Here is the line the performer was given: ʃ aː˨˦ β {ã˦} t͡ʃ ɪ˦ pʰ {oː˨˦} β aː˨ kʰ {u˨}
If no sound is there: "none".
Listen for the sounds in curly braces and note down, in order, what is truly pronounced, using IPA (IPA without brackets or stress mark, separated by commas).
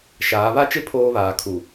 a˦, oː˦, u˨